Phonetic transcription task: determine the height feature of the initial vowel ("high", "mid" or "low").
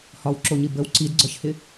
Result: low